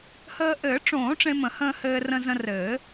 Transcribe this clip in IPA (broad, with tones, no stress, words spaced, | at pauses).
həː˧ʔɘː˨˩˦ʈ͡ʂõː˨˩˦ ʈ͡ʂẽ˧mə̃˨˩˦hə̃ː˧ hɘː˧ rə̃˧zə̃˧ rɘː˨˩˦